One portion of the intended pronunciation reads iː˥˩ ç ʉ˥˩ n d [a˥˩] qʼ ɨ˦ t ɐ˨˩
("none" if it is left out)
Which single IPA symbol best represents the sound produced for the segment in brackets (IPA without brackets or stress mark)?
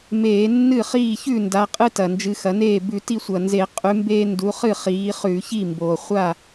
a˨˦